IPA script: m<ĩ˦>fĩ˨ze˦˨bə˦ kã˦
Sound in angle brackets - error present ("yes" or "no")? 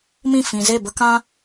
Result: yes